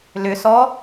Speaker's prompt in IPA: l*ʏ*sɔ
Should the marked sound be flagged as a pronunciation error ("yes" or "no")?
no